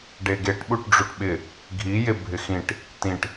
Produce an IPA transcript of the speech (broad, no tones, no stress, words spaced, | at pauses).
ɖeɡeʈ ɓuʈɖ͡ʐuʈɓɪ | ɡʱi jebʱɪxĩʈ | tĩʈ